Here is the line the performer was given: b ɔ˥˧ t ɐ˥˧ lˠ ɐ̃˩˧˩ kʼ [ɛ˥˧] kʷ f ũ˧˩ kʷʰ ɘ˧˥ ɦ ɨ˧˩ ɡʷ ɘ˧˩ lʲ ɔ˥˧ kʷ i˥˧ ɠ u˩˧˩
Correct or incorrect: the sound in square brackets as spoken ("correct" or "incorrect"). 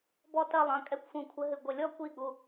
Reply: correct